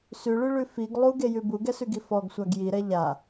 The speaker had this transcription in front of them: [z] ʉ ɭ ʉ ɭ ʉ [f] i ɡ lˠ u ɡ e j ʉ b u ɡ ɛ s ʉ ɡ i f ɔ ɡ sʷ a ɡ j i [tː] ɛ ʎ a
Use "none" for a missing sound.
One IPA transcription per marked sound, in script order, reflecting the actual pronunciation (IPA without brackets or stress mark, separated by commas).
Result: s, f, ɾ